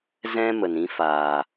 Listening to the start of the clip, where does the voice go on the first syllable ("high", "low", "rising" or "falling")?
high